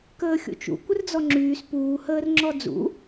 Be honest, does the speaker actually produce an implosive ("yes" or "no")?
no